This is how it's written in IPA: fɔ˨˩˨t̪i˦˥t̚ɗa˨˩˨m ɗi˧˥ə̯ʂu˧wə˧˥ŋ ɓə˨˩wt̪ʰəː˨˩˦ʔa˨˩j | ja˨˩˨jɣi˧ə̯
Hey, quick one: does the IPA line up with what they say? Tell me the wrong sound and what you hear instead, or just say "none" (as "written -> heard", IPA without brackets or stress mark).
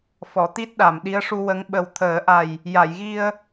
none